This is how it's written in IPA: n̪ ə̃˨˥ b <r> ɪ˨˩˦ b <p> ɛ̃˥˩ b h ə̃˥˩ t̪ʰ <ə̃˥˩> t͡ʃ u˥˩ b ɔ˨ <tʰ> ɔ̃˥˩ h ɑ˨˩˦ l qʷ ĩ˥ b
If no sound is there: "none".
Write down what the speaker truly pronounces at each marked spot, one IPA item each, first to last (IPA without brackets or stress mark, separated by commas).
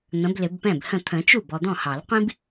l, p, ə̃˨˩˦, d̪